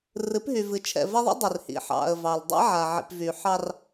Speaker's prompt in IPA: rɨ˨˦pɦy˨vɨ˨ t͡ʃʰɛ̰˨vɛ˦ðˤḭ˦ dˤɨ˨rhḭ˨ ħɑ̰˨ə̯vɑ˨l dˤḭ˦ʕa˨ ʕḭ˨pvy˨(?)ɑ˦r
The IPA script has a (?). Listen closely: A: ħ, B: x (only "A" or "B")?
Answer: A